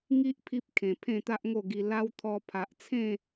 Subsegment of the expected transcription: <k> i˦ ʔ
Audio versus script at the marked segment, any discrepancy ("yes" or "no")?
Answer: yes